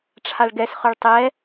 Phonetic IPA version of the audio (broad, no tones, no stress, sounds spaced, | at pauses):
ʈ͡ʂʰ a ɭ ɡ ɛ s χ ʏ ɭ tˤ ɛ